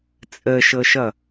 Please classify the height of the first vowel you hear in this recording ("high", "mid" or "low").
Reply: mid